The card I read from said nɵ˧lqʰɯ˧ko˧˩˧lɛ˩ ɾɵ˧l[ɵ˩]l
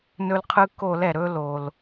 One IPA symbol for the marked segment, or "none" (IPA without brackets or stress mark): o˩